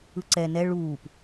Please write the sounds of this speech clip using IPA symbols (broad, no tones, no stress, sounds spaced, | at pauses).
ɯ ǀ ɛ n ɛ ɭ uː p